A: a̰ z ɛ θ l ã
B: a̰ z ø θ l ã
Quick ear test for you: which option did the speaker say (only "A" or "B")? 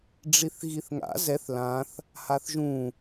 A